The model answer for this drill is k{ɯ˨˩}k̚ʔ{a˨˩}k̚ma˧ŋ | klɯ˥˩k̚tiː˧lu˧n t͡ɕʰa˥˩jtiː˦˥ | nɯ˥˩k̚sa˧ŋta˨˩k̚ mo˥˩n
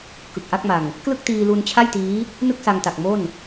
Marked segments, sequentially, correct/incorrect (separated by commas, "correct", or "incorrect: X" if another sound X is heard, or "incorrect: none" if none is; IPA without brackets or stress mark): correct, incorrect: a˥˩